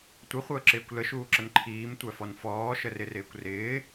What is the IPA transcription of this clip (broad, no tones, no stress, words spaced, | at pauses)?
tʷɪχʷəːǁɪːkʷ ləʃuːǁən ǃʰiːmtʷæfɔn fɔːʃərɪrɪːkʷ rɪː